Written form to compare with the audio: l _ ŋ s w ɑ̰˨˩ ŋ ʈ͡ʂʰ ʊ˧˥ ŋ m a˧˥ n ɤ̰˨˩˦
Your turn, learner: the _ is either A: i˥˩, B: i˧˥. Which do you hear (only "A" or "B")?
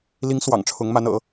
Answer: B